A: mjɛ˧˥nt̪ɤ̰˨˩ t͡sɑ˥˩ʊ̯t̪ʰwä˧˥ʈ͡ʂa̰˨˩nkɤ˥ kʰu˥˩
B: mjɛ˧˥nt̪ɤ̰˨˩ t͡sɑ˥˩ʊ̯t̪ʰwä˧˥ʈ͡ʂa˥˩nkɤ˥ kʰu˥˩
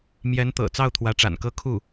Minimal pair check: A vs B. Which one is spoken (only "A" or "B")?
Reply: A